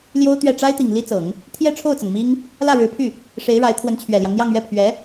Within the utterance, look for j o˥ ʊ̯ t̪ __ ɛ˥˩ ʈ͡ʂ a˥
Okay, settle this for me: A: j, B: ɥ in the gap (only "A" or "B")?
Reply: B